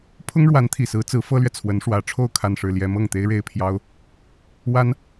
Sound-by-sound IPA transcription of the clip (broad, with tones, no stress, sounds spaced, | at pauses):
pʰ ʊ˥ ŋ ɻ w a˧˥ n t̪ʰ i˨˩ s ɹ̩˧˥ t͡s ɹ̩˧˥ f ɤ˥ l ɥ ɛ˨ t͡sʰ w ə˧˥ n ʂ w ä˧˥ ʈ͡ʂʰ o˥˧ ʊ̯ kʰ a˥˧ n ʂ ɻ̩˥˩ l j ɛ˥ m ɤ˥˩ ŋ t̪ e˥ ɪ̯ ɻ e˥˩ ɪ̯ pʰ j ɑ˥ ʊ̯ | w a˥ n